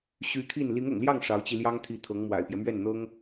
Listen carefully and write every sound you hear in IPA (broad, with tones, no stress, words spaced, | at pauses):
ɕy˧˥ t̪ʰi˥˩n li˧˥ŋʊ̰˨˩ŋljɑ˥˩ŋ ʂɑ˧˥ʊ̯t͡ɕi˧ ljɑ˥ŋt̪ʰi˧˥ t̪ʰɤ˧˥ŋ mwa̰˨˩ɪ̯pjɛ˦mɥɛ˥˩nn̪ɤ˥ŋ